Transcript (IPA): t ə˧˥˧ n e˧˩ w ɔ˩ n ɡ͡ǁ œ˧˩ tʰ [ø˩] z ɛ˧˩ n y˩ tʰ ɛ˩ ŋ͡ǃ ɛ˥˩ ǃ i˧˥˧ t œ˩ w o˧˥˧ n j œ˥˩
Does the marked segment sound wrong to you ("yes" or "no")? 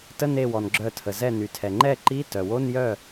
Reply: yes